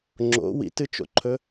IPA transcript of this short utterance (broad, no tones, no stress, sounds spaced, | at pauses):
ŋ͡ǁ o̰ w ḭ t ɨ t͡ʃ o̰ ǃʰ ɵ